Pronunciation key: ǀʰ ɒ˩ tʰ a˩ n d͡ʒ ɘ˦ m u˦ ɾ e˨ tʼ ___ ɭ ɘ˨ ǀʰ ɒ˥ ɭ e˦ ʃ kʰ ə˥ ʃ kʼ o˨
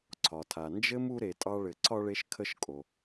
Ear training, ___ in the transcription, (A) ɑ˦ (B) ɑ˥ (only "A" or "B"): A